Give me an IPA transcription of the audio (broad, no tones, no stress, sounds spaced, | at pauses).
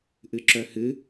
ʔ ɨ ǁ œ h ɨ